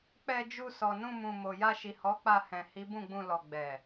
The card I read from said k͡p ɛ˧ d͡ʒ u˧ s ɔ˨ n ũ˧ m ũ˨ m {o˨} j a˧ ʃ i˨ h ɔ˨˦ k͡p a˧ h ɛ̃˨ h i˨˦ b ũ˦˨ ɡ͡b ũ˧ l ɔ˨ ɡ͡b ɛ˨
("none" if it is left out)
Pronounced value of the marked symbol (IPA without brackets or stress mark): o˨